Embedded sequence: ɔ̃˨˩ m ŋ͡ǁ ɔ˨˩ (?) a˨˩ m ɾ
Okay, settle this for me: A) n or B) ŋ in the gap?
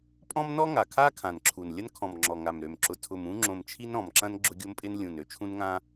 B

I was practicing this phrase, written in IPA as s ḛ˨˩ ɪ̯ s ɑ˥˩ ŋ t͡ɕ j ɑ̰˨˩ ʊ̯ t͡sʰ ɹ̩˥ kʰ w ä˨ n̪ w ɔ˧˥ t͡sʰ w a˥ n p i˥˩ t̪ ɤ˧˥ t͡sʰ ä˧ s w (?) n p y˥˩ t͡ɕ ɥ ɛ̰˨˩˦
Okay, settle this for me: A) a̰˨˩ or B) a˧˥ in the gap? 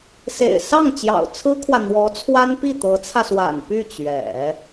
A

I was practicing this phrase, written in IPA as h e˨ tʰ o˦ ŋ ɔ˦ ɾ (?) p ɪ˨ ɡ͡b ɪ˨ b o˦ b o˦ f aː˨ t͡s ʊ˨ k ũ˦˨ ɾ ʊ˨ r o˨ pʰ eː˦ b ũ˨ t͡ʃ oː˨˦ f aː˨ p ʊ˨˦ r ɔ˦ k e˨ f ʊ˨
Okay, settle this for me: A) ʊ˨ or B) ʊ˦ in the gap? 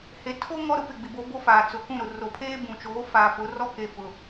B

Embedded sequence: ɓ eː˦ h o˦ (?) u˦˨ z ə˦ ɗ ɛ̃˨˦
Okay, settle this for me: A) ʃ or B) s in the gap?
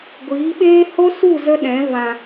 B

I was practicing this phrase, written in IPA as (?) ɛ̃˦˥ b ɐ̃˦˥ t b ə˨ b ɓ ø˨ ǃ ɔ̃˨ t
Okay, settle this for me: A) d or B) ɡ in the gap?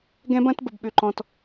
B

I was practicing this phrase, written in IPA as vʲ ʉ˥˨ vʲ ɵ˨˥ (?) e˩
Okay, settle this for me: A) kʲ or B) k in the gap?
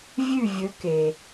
B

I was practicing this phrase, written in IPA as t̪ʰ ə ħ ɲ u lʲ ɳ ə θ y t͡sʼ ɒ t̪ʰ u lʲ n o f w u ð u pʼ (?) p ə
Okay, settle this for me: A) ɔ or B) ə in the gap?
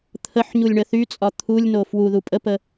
B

